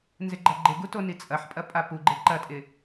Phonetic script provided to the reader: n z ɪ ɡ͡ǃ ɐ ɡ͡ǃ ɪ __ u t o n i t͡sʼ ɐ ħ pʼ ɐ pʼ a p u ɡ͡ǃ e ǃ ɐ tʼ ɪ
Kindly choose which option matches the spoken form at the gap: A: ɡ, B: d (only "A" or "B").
A